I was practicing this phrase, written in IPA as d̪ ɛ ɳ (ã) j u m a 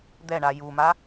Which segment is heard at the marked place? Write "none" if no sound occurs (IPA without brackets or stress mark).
a